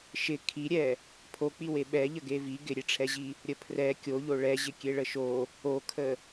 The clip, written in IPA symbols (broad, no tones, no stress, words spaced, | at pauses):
ʃɪ kʰiɾʲɛ | pʰok͡piwe ɓɛʎə ɡevi ɡɪɾʲeʈ͡ʂʰɛʑi | ɾʲəpʰrɛ kʲoʎo ɭɛʑɪ kʲeɭəʃo | okʰə